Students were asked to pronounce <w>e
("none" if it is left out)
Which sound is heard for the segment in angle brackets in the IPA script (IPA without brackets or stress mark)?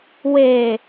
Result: w